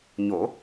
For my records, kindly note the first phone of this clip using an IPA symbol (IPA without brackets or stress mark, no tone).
ɲ